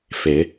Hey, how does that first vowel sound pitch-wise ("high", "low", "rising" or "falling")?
rising